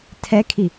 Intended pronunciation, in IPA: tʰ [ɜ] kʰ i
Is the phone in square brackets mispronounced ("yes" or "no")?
yes